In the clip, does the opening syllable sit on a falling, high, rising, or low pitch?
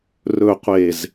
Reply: low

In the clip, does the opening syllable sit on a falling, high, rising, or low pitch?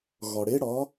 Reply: low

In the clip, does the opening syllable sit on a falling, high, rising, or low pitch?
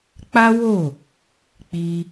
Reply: high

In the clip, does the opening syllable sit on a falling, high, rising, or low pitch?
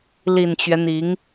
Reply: low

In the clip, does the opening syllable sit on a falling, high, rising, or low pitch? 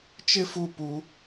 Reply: high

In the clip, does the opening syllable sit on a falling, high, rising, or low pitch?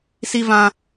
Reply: high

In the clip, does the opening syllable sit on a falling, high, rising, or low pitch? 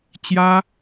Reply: high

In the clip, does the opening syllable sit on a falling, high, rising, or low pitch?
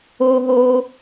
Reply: low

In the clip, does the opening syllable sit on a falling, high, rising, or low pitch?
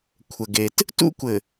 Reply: low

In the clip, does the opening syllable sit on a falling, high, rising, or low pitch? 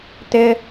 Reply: high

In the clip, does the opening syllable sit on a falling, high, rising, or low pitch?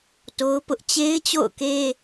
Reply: high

